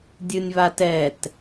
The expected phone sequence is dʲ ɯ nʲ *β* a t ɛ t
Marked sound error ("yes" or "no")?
no